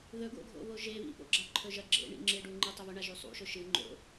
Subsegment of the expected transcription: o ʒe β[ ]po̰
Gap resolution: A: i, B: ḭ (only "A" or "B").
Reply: B